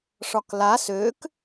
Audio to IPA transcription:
ʂ ɒ k l a s ø k

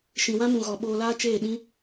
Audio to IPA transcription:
ʃ ĩ˨ w ã˦ m ũ˨ ɣ ɔ˨ ɓ oː˧ l aː˦ t͡ʃ eː˦˨ ɗ ĩ˦

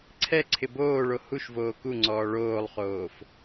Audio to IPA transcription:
ǀʰ ɛ ǀʰ ɪ b oː ɭ o h u ʃ v oː k u ŋ͡ǀ ɔː ɭ oː lˠ χ oː f

